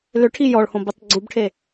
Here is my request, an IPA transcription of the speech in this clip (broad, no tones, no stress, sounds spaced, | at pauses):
l ʏ ʈʰ i j ɔ ɭ h õ b i tˤ ɡ͡ǀ u b ʈʰ e